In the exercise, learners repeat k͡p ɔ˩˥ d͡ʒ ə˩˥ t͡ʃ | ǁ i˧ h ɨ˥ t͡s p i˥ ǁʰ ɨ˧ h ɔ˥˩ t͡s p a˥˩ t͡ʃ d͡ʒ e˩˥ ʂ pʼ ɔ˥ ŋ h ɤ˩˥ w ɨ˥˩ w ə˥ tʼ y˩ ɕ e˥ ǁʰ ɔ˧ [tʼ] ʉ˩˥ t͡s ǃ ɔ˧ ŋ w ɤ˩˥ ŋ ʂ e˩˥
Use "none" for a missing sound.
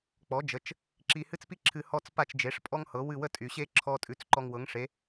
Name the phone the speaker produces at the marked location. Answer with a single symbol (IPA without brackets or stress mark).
tʼ